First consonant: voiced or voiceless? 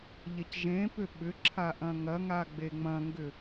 voiced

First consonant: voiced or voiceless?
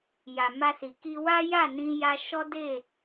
voiced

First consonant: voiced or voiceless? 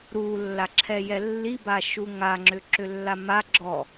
voiced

